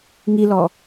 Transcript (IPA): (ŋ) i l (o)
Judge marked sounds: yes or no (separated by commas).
yes, no